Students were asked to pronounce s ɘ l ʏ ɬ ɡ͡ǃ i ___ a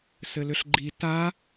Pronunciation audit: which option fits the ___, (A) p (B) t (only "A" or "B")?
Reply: B